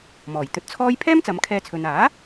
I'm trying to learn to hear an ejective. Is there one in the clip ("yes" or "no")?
no